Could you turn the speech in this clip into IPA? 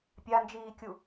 pʲ a n d͡ʒ iː kʲ u

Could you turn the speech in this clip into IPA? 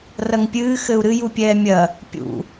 r ɐ ŋ pʲ ɨː x ɘ u̯ ɾ ɨ j u pʲ ɛː mʲ ɐ | pʲ ṵ

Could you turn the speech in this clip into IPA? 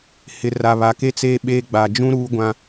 h ɪ˨ r a˨ β a˨ k e˦ t͡s eː˦ ɓ eː˦ ɡ͡b a˨ d͡ʒ ũ˦ ɾ uː˦ ɡʷ ã˦

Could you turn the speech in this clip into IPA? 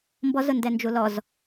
m b ɔ z ʊ n d ɛ n d͡ʒ u l ɔ z

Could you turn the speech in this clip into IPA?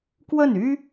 k w ə˥˩ n y˥

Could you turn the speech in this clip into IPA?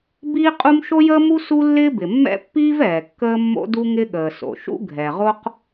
b iː˥ qʼ u˥ m ʃ o˥ j əː˥ m u˥ s u˥ lː ɪː˥ b ɪ˩ mː ɛ̰˥ pː iː˥ v ɛː˩ kː əː˥ mː o̰˥ d u˥ ŋ ɪ˥ ɠ əː˩ s o̰˩ ʃ ṵ˥ ɡʱ ɛ˩ ʁ o˥ q

